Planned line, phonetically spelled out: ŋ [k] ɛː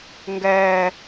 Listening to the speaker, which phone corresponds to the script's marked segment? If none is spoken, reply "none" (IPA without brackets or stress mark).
ɡ